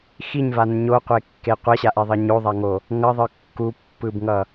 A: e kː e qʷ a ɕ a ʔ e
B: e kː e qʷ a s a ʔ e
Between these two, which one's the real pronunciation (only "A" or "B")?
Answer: A